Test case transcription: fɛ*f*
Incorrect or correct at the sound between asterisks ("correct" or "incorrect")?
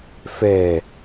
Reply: incorrect